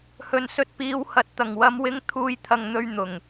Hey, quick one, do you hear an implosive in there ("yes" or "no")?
no